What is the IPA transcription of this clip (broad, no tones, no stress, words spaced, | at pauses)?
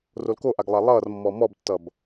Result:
rolkoʔaɡ lˠalˠʌːrmːɔ mɔbtːʌb